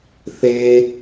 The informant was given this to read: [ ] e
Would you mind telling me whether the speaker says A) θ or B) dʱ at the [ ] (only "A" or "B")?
A